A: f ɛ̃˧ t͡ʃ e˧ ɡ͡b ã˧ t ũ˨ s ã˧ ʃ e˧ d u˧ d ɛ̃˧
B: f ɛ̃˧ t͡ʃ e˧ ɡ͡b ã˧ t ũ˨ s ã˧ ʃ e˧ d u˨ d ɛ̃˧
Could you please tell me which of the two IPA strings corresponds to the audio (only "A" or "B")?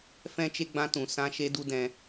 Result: A